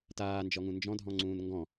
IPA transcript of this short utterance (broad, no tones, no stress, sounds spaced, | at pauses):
t aː n d͡ʒ ɔ ŋ ũ n d͡ʒ ɔ̃ dʱ ɔ̃ ŋ͡ǀ ũː n ŋ ɡ ɔ̃